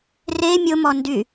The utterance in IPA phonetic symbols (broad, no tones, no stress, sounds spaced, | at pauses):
r e mʲ ʊ m ɔ n d y